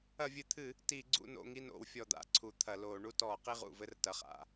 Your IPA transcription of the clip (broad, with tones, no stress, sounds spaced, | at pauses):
ɐ˧˩˧ vʲ ɨ˨˩ t̪ʰ ɨ˧˩˧ | t i˧˩˧ ɡ͡ǀ ṵ˦˨ n o̰˦˨ ŋ i˦˨ n o̰˧˩˧ w fʲ ɔ˨˩ d̪ a̰˦˨ ǀʰ u˨˩ t̪ʰ ɐ˧˩˧ l o˧˩˧ ɳ u˦˨ t ɔ˧˩˧ q i˦˨ ʁ ṵ˨˩ v ɘ˦˨ r t ɐ˨˩ χ a̰˨˩